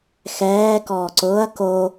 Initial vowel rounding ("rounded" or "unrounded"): unrounded